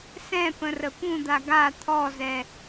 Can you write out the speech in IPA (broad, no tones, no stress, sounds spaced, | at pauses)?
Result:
s ɛ̃ p ə̃ r ə p ũ d̪ a ɡ a t̪ʰ ɔ z ɛ